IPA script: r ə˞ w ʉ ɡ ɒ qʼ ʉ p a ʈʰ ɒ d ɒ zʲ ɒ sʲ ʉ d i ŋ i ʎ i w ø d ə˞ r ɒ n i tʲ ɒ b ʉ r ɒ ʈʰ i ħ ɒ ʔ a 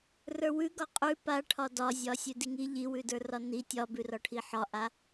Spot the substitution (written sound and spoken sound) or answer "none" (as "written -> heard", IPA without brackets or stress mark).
ø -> ʉ